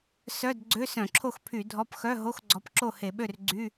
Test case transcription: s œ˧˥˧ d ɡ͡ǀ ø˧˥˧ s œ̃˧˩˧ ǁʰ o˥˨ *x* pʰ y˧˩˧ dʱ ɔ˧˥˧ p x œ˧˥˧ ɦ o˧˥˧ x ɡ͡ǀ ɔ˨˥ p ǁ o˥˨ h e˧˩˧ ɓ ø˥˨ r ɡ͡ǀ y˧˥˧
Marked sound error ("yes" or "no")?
no